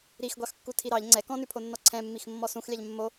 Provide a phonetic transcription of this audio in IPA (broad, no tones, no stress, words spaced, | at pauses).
ɾixɡʷɑxkːu tʰiɾɑʎ ŋ͡ǀɛ kɔ̃nʉpʰonːɔ ǀʰɛ̃mːix mːɔsũxlʲɑʎ mːo